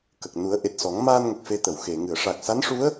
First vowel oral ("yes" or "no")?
yes